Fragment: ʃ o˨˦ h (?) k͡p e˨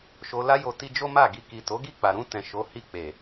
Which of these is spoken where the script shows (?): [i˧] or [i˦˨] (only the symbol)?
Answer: i˦˨